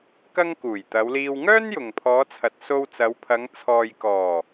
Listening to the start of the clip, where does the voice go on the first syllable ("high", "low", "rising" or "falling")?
high